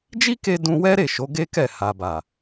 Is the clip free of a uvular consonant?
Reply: yes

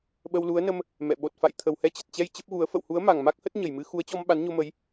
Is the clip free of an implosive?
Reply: no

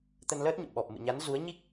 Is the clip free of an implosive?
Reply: no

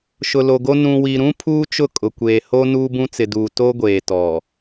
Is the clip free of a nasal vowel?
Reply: no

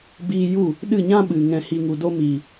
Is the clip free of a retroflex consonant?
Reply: yes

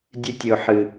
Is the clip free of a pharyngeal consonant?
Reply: no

